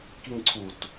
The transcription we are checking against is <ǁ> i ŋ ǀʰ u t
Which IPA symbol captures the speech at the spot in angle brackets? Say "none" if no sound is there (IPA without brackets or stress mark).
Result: k